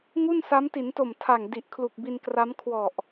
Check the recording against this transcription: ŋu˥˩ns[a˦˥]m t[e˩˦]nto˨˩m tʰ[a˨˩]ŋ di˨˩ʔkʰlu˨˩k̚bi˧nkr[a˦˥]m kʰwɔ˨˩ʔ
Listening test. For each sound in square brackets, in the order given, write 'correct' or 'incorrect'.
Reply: correct, incorrect: i˩˦, correct, correct

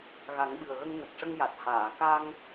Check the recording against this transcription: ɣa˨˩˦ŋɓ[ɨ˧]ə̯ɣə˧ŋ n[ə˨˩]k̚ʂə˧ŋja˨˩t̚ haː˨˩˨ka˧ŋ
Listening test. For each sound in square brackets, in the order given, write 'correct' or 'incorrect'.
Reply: incorrect: ɨ˨˩, correct

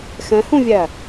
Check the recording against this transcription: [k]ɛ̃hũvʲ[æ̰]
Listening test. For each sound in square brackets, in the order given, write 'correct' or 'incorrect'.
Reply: incorrect: x, incorrect: æ

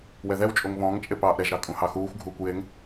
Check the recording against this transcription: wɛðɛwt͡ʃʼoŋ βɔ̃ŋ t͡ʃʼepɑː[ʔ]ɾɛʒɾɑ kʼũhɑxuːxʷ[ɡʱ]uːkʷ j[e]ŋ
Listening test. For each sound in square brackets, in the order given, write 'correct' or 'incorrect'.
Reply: correct, correct, correct

